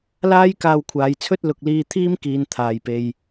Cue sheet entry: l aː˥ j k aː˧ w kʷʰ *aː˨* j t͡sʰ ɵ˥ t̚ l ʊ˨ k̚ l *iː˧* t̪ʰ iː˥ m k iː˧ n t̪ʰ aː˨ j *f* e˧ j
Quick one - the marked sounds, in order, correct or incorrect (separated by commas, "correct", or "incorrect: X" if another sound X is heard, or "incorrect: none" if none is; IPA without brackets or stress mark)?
correct, correct, incorrect: p